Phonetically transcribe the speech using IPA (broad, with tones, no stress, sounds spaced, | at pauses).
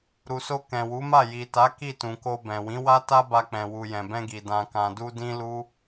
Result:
ɾ u˨ s o˧ k ɛ̃˨ w u˨˦ m a˦˨ j i˨ t a˨˦ k i˦˨ t ũ˨ k o˧ b ɛ̃˨ w ĩ˨˦ w a˦ t a˦ b a˧ k͡p ɛ̃˨ w u˨ j ɛ̃˨ b ɛ̃˧ ɡ i˨ d ã˨ k ã˨ d u˧ d ĩ˦ l u˦